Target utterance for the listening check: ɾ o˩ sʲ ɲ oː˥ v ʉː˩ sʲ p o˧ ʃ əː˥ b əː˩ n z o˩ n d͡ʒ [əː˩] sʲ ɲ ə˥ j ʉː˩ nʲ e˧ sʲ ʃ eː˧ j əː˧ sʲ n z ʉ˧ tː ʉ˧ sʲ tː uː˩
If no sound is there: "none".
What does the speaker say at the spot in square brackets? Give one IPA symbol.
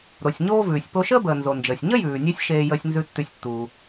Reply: əː˩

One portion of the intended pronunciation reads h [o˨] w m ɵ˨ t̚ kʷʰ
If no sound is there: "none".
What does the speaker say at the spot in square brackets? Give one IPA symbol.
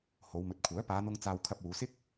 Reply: o˨˧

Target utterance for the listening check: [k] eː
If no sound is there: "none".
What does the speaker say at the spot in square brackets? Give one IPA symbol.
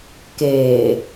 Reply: k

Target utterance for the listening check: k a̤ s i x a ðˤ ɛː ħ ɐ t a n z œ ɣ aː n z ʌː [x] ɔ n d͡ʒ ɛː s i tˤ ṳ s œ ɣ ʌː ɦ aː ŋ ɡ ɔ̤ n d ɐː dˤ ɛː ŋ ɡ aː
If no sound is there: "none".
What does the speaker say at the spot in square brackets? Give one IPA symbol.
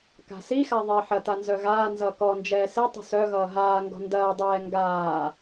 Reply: k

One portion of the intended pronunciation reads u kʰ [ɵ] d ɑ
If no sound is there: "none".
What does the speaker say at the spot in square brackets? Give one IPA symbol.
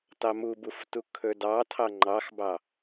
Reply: ɵ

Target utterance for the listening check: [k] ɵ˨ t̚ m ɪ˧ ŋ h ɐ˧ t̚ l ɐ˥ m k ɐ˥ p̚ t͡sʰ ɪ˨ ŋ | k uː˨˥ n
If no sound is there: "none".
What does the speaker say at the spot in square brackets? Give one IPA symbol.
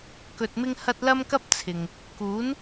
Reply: k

